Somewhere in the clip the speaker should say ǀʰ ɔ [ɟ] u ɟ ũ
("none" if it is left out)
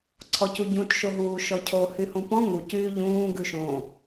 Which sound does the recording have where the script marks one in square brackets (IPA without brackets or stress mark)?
c